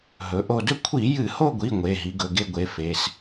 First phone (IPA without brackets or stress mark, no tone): ɦ